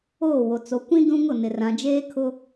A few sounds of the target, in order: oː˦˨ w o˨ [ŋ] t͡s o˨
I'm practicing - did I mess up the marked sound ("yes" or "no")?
yes